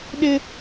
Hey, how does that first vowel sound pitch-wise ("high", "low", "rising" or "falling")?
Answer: high